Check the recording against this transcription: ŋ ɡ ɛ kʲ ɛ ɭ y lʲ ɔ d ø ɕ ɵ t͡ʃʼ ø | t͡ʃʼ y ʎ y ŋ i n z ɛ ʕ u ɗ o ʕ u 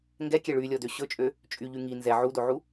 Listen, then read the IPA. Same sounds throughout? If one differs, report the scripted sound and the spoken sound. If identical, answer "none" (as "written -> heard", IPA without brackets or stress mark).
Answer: ɗ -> d